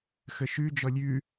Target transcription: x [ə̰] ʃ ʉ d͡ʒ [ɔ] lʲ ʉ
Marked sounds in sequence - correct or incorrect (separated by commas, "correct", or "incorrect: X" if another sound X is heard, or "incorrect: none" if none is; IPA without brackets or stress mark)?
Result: incorrect: ə, correct